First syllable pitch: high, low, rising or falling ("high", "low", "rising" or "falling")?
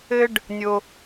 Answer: high